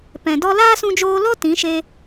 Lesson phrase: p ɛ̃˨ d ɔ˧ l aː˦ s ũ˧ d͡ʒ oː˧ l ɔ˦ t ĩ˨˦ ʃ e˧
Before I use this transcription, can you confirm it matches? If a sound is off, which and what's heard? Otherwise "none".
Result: none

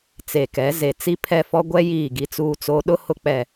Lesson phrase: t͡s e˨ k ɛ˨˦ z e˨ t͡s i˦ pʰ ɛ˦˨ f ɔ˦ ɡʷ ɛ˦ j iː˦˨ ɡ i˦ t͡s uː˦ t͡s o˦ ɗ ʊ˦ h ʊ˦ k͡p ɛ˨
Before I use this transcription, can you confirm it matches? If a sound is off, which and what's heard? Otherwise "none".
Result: none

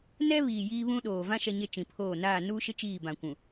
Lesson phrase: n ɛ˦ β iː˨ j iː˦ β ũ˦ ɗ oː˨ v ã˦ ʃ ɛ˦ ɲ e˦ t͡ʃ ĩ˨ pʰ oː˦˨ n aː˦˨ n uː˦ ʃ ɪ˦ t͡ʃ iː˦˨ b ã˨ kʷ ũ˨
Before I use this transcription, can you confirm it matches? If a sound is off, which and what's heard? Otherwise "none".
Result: none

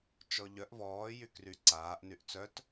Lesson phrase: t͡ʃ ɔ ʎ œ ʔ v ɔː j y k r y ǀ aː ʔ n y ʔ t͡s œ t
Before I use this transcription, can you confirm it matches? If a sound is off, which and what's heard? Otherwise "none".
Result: none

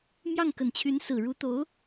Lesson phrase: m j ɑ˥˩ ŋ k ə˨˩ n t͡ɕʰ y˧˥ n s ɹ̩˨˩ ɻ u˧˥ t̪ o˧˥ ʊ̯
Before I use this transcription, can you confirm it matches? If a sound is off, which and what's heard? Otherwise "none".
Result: none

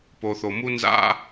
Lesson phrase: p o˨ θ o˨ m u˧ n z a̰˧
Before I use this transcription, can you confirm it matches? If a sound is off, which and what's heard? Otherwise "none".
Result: none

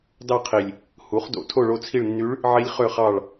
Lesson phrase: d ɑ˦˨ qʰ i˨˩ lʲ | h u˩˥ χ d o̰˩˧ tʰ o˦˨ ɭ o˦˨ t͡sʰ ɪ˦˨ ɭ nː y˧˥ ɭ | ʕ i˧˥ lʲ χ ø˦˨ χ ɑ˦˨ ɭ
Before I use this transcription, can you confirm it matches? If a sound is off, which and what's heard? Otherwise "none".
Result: ɪ˦˨ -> i˦˨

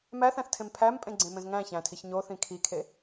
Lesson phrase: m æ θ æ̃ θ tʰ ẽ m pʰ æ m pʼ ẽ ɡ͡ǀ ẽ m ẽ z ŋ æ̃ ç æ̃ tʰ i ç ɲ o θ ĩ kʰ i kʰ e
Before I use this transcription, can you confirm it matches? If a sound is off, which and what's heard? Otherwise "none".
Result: none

